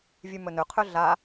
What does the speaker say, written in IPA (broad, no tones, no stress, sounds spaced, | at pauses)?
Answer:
vʲ ʉ m ɵ n ɵ qʰ ɵ ɮ a